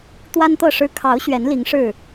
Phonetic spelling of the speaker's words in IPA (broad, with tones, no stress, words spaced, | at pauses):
t̪wa˦nt̪ɤ˥˨ʂɻ̩˦ kʰɑ˨˦ʊ̯ ɕɥɛ˨˦n li˨˦ŋʂɻ̩˥˨